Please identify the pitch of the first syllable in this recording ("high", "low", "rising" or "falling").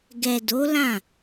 low